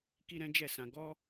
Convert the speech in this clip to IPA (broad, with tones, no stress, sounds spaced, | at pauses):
k i˦ ɾ ɛ̃˦ d͡ʒ ɛ˦˨ s ã˧ ɡ ɔ˦